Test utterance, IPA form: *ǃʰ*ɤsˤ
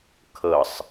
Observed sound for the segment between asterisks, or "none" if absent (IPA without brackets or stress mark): kʰ